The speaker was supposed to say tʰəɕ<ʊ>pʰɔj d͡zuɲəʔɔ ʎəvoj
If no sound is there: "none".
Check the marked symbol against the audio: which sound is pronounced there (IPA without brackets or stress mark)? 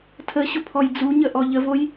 ʊ